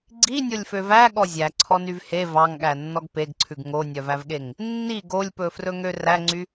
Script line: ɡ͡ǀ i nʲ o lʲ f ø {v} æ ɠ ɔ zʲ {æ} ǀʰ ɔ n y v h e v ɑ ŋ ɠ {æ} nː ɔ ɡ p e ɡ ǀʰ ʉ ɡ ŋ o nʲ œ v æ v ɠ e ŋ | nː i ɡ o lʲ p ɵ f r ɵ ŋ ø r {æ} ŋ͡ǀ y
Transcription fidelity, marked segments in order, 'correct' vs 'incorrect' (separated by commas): correct, correct, correct, correct